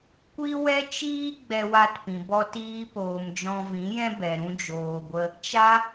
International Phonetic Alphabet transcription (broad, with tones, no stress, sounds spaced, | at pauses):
kʷ i˦ w ɛ˦ t͡ʃ iː˦ ɡ͡b ɛ˧ w a˧ t p ĩ˨ b ɔ˧ t iː˧ p oː˨ m d͡ʒ ɔ̃˧ v ĩ˨˦ j ɛ̃˦ b ɛ˨ ɾ ũ˧ d͡ʒ oː˨ ɡʷ ə˧ | t͡ʃ a˦